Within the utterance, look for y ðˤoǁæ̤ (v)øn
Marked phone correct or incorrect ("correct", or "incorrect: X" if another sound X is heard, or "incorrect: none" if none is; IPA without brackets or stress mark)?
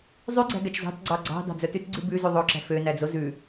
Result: incorrect: f